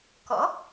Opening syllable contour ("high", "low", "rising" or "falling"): rising